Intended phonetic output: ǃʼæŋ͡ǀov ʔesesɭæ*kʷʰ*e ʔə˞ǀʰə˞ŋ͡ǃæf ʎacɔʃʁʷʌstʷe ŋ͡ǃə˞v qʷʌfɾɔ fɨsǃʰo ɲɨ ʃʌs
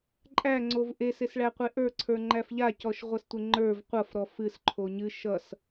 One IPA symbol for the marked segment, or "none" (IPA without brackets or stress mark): qʷ